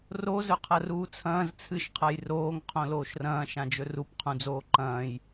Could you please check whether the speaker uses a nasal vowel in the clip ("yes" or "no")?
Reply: yes